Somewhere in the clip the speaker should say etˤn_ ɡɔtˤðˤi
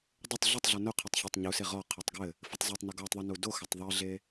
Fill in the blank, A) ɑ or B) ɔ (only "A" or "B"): B